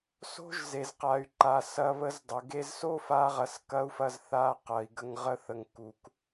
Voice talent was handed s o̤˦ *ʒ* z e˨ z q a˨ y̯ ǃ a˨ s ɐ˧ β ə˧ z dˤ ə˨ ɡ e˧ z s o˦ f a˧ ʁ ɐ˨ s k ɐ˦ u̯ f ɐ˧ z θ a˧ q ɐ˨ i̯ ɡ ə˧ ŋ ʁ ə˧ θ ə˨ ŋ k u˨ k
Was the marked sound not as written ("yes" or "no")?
no